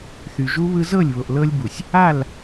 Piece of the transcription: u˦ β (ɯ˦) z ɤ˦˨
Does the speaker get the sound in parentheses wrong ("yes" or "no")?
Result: no